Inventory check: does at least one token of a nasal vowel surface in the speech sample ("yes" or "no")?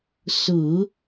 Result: no